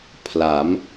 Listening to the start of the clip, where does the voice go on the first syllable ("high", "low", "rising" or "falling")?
rising